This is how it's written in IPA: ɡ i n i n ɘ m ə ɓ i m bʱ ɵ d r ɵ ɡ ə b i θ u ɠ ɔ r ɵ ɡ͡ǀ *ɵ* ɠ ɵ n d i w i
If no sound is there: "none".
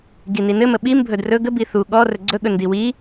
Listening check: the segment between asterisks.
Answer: ɵ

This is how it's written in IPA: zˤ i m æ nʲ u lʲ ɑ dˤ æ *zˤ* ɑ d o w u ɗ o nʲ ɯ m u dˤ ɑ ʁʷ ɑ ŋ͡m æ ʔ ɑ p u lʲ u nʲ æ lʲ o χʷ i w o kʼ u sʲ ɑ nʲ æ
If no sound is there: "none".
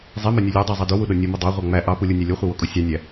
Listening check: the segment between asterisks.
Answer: zˤ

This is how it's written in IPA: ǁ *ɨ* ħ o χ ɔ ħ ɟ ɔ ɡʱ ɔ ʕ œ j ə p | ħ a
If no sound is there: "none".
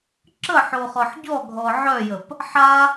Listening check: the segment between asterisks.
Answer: ə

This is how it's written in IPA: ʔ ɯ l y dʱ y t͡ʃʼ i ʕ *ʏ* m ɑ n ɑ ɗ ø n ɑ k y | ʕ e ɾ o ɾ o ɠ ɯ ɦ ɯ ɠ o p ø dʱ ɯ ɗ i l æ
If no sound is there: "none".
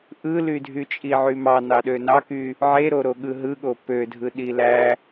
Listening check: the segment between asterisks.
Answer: y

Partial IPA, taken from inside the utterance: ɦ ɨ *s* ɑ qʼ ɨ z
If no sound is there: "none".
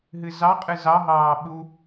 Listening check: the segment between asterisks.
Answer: z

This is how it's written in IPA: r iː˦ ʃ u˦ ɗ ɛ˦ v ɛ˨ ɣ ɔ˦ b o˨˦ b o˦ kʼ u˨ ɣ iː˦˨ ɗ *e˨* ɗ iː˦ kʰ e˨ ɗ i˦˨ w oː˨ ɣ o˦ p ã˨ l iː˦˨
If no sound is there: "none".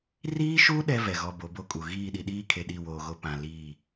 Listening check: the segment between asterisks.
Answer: i˨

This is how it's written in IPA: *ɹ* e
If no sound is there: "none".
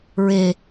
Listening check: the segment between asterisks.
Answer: ɹ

